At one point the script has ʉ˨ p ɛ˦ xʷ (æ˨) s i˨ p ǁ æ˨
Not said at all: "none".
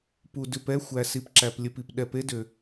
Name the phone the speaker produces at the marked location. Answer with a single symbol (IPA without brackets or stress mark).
æ˨